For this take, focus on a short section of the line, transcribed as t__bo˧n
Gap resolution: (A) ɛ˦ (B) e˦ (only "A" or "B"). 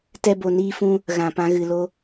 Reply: A